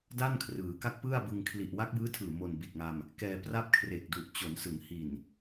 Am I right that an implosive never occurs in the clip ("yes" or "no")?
yes